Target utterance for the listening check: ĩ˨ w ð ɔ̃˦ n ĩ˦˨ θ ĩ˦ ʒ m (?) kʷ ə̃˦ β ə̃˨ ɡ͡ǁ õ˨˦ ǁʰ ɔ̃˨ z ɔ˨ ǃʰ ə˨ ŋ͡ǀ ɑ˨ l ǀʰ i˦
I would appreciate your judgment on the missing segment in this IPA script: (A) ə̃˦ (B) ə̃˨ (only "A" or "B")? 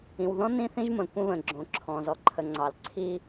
B